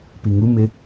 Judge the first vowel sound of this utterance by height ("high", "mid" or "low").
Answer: high